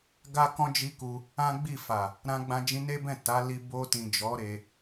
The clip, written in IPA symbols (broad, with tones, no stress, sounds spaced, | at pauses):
ɡ a˦ k ɔ̃˦ d͡ʒ i˦ k u˧ | ã˦ ɡ͡b i˦˨ f a˨ | ɾ ã˧ ɡ͡b ã˧ d͡ʒ ĩ˧ n e˦ b ɛ̃˦˨ t a˨˦ l i˧ b o˧ t ĩ˨ d͡ʒ ɔ˨˦ ɾ e˧